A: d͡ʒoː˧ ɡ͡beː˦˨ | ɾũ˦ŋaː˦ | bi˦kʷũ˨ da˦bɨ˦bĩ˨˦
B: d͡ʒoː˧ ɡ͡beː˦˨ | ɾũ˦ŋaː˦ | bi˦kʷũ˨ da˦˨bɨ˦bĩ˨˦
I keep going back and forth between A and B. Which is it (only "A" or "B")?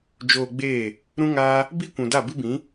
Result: B